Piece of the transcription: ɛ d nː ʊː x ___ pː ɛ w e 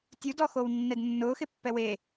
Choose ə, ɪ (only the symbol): ɪ